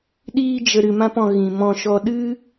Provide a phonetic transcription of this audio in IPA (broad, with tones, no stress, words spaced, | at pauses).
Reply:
ɗiː˦d͡ʒə˧ ɾɨ˧mã˦pɔ̃˧ ɣĩ˨mɔ̃˧ʃɔ˧ ɗɨ˦